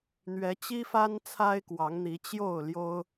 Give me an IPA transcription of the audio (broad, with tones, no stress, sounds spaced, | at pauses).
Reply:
n̪ ɥ ɛ˨˦ t͡ɕ i˦ f a˦ n t͡sʰ a˦ ɪ̯ k w ɑ˨˦ ŋ n̪ i˨˦ t͡ɕ j o˥˨ ʊ̯ l j o˦ ʊ̯